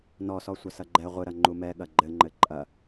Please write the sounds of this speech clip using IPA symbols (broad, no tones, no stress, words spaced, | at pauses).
nɔsɔ sʷɐsɐɡ͡ǃɛ ʁʷɨɾɐ ŋ͡ǃumɛ ɠɐɡ͡ǃɘŋ͡ǃɘ ǃʼɐ